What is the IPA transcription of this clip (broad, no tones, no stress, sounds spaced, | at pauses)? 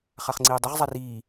χ a χ ŋ͡ǀ iː dˤ i ʁ zˤ a r iː